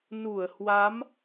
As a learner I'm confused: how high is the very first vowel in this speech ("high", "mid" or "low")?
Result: high